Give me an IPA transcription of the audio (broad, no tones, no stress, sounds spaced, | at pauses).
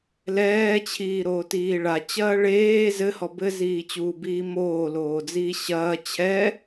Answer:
l ɛː t͡ɕʰ iː ɾ oː t iː ɭ a t͡ɕ ɐː ɭ eː z ɘ h ɔ b ɘ z iː t͡ɕ uː b iː m oː l oː d͡z iː ɕ ɐː t͡ɕʰ ɛ